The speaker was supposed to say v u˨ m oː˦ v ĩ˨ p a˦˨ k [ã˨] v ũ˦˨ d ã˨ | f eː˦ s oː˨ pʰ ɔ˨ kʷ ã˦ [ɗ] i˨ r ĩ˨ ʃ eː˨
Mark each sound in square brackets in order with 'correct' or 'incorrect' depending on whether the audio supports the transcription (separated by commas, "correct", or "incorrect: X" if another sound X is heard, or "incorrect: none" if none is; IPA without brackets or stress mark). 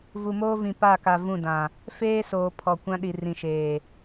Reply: incorrect: a˨, correct